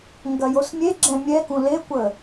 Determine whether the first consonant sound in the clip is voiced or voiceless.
voiced